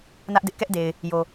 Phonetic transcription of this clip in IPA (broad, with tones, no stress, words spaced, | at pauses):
nä˦ʔdɪ˦ʔkɛ˦ʔde˨ɪ̯ | jo˨